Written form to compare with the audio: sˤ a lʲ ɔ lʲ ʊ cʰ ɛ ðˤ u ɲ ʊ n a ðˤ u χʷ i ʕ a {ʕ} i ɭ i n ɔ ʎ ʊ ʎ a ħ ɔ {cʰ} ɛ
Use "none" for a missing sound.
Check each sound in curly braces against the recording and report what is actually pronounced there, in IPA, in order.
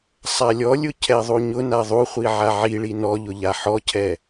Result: ʕ, cʰ

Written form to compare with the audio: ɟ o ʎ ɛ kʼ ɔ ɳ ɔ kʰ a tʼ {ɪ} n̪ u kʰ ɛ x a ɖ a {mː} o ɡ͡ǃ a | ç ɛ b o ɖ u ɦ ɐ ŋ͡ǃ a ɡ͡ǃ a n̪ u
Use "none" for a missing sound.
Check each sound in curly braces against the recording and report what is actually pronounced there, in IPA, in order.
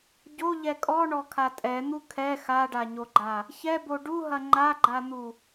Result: ɛ, ɲ

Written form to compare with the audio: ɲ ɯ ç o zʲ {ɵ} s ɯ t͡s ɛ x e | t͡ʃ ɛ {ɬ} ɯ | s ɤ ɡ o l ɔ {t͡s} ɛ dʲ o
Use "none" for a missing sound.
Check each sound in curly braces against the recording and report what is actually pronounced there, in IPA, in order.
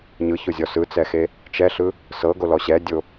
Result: ɔ, ɬ, ɕ

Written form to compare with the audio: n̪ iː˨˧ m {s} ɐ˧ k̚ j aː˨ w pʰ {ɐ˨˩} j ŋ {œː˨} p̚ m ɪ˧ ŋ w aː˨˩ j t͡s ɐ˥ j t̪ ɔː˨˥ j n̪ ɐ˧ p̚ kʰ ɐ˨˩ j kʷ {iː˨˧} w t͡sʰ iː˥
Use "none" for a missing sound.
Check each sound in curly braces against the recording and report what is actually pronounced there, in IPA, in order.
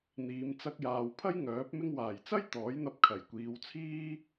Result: t͡s, ɐ˥, œː˨˥, iː˨˧

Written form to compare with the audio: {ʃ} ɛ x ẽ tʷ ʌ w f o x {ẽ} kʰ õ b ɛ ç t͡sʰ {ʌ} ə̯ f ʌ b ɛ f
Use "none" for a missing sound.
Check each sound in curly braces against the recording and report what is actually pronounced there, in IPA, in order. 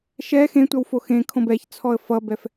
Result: ʃ, ẽ, ɔ

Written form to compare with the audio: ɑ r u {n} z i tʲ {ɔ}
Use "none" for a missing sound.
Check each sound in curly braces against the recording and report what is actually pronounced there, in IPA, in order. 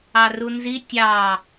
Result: n, ɑ

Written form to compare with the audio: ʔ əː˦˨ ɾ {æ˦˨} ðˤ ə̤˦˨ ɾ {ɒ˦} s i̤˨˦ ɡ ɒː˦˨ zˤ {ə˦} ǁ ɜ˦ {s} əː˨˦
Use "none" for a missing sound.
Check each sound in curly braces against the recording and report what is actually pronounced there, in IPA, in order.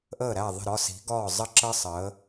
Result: æ˦˨, ɒ˦, ə˦, sˤ

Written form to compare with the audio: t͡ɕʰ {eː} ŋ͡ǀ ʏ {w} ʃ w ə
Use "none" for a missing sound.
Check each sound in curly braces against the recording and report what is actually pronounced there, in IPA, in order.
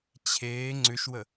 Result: eː, none

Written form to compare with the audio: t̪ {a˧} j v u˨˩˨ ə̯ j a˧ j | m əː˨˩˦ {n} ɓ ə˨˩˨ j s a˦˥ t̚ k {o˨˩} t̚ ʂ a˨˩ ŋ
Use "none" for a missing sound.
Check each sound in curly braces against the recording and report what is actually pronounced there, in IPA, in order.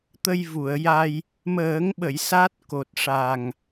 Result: ə˧, ŋ, o˨˩

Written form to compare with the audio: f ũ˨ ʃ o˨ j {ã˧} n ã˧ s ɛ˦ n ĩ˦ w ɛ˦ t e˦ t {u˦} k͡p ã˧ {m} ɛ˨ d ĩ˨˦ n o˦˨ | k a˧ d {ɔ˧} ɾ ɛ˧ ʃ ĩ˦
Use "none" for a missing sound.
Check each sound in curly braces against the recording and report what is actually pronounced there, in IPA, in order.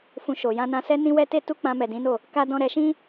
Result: ã˧, u˦, m, ɔ̃˧

